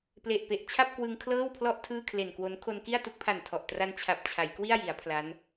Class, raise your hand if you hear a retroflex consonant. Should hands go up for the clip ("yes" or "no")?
no